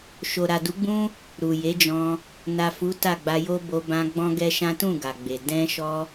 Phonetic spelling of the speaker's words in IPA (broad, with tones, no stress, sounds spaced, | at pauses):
ʃ o˨ ɾ a˨ d u˨˦ ɡ͡b ũ˦ | ɾ u˨ j e˨˦ d͡ʒ ɔ̃˧ | n a˨ f u˨˦ t a˦˨ ɡ͡b a˧ j o˦ b o˧ b ã˧ ɡ͡b ɔ̃˦ ɡ ɛ˦ ʃ ã˦ t ũ˦˨ ɡ a˨ ɡ͡b e˨ d ɛ̃˧ ʃ ɔ˧